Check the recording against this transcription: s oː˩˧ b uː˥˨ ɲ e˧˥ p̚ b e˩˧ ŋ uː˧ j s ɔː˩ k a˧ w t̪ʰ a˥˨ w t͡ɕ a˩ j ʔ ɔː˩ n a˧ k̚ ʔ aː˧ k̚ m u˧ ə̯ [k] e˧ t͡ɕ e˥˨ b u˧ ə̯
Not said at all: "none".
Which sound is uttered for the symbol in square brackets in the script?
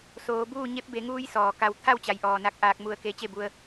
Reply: k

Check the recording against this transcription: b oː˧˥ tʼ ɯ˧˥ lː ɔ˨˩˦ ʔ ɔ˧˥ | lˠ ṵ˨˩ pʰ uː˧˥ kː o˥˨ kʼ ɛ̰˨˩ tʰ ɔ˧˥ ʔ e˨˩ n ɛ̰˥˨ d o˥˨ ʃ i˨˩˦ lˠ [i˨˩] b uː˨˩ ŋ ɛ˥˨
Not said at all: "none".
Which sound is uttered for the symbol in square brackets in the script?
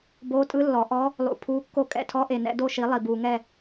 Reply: i˨˩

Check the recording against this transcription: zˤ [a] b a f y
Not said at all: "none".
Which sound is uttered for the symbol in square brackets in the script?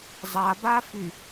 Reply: a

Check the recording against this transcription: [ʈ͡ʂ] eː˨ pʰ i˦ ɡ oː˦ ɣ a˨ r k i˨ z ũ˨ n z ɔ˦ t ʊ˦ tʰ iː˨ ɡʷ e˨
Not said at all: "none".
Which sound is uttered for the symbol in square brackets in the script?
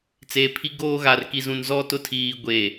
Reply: t͡s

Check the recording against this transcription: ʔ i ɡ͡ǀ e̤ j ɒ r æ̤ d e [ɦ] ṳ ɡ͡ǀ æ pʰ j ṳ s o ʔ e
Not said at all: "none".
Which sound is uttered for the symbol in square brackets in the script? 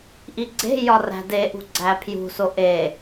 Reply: ʔ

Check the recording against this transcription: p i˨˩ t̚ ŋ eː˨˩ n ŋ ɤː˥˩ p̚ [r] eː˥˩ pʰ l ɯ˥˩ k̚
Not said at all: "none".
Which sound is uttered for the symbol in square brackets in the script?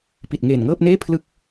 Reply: n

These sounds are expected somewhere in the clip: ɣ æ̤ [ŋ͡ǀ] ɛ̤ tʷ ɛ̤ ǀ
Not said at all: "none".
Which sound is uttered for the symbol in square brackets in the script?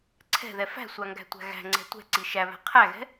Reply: ŋ͡ǀ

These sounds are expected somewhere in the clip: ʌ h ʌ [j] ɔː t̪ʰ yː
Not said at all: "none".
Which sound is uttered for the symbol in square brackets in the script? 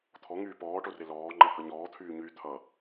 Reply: ɲ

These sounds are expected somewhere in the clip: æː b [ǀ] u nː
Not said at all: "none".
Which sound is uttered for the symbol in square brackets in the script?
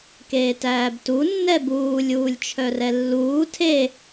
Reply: t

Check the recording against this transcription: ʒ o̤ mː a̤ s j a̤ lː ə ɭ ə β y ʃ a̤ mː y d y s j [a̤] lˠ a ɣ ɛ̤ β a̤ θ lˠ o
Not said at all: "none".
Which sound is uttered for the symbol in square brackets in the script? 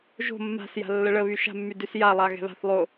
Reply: a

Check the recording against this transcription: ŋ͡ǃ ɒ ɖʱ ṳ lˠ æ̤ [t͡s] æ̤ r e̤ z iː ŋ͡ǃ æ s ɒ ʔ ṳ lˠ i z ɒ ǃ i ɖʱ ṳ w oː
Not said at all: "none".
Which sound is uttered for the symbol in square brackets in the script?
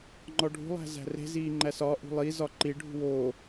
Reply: z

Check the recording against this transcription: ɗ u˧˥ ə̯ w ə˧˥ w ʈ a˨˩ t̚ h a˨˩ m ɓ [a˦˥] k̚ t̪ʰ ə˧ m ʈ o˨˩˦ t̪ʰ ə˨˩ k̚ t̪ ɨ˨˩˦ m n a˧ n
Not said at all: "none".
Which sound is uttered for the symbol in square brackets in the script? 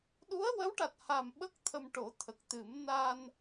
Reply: ə˦˥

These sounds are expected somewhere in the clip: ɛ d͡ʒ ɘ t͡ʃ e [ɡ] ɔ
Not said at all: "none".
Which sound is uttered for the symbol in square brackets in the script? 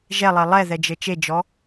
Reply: d͡ʒ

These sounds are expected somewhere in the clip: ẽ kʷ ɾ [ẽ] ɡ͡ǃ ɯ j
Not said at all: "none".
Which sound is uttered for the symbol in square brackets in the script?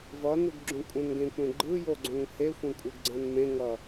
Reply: ẽ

